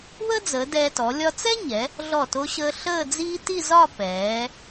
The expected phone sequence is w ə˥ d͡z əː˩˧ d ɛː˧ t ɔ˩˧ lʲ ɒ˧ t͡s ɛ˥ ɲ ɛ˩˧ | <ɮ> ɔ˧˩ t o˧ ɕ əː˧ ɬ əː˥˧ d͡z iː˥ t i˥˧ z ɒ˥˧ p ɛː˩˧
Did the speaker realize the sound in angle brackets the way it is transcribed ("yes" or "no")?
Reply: yes